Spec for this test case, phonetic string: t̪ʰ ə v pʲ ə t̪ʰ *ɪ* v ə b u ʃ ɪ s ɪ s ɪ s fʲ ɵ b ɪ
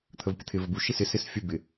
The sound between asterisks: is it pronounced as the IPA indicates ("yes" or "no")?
yes